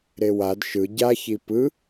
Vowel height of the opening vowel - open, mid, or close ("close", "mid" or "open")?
mid